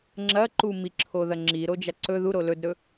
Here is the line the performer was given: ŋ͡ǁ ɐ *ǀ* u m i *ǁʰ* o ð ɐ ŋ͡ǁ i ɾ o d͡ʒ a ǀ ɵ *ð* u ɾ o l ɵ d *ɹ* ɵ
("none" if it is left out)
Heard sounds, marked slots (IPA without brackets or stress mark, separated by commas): ǃ, ǁʰ, ð, ɾ